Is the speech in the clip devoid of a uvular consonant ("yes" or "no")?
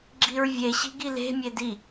yes